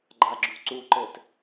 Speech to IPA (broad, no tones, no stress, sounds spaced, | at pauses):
ɡ͡ǃ a ɡ͡ǁ u ǀ u ǃ ɘ t